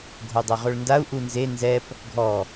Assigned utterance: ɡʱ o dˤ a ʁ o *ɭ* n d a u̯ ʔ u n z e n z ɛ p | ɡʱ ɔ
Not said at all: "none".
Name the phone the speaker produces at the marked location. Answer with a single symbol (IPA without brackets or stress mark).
ɭ